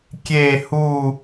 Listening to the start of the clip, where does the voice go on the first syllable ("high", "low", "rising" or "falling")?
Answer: falling